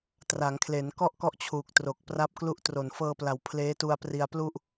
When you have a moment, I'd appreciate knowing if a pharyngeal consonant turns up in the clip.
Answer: no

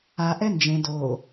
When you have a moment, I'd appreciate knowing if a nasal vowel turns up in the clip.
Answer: yes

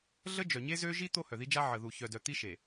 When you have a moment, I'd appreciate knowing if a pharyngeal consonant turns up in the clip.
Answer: yes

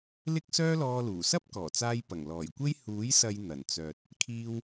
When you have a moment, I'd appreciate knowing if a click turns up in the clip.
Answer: no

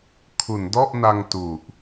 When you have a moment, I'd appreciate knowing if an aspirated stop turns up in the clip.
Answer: yes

